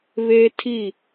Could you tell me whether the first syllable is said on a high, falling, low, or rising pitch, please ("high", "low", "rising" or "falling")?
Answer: high